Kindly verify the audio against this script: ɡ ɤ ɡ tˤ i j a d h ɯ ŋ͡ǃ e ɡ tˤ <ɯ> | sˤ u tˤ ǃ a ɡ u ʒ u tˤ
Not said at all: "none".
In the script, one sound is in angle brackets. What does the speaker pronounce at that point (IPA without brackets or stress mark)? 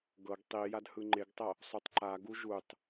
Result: ɤ